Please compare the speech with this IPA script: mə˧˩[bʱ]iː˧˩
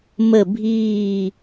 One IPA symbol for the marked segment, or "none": bʱ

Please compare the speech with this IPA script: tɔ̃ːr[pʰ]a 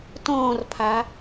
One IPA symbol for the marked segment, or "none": pʰ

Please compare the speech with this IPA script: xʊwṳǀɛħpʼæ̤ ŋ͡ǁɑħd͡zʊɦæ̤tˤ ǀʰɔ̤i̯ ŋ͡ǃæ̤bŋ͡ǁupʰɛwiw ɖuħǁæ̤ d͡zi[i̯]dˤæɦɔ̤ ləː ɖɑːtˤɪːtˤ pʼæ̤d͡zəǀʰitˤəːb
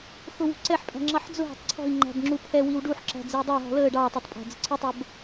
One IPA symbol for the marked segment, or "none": u̯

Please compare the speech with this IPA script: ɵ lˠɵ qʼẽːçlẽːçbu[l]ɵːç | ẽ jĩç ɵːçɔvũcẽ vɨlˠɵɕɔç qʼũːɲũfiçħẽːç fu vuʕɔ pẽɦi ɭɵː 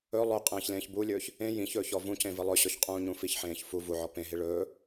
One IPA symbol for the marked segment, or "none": lʲ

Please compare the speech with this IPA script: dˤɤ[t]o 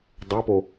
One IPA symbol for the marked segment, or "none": p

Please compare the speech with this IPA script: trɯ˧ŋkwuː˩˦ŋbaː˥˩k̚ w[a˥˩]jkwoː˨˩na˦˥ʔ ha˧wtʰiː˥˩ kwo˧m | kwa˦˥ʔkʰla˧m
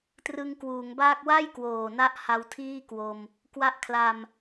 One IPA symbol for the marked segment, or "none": a˥˩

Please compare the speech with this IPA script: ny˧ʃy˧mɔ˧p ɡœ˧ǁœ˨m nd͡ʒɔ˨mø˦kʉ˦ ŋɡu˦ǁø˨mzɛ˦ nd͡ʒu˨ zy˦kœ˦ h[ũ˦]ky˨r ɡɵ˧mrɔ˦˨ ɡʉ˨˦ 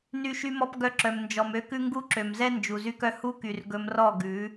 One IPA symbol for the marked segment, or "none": u˦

